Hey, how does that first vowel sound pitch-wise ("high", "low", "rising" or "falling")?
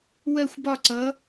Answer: falling